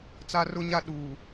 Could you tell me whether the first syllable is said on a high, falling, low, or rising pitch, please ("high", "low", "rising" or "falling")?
high